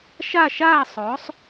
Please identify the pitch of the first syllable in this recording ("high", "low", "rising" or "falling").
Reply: falling